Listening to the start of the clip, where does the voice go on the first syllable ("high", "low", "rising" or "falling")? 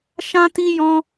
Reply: high